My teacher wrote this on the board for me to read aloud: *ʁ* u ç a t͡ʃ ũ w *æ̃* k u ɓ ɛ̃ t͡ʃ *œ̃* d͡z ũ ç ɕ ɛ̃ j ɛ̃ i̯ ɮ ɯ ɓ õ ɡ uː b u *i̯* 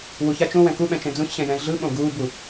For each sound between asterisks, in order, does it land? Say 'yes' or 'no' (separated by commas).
no, no, no, no